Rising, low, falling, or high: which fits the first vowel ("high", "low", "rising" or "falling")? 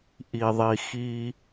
low